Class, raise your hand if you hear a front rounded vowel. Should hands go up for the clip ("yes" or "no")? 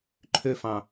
yes